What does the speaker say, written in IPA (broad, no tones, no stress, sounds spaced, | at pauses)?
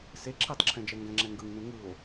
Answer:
s e ǁʰ i tˤ ǁʰ ɛ̃ d͡ʒ ɛ ŋ ɡ ɛ̃ ŋ͡ǁ ɛ ŋ ɡ ɯ ŋ n ũ ŋ ɯ o̯